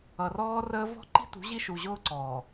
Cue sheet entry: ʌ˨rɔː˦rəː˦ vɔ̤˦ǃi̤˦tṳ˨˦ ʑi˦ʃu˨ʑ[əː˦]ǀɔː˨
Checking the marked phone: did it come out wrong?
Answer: yes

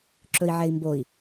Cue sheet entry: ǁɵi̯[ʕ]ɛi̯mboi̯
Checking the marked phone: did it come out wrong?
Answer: no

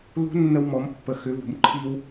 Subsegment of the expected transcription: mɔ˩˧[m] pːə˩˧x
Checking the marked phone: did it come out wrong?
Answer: no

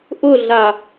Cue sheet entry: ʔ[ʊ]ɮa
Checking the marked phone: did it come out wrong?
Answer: no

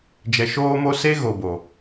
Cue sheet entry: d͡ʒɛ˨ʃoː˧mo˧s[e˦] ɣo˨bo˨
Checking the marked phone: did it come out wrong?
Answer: no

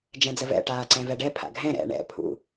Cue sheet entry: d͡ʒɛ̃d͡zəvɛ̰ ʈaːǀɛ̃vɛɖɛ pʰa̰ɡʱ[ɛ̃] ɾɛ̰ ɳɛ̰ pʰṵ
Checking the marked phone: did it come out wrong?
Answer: no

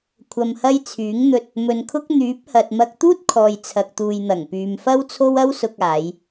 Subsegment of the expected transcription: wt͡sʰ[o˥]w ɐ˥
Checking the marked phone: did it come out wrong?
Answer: no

